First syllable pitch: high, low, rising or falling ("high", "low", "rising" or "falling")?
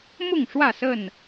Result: falling